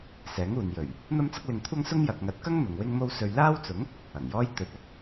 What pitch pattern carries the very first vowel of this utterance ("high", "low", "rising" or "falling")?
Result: rising